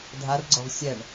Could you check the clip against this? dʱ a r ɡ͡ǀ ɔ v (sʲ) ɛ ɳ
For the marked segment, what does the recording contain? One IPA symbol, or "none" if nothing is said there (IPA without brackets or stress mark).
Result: sʲ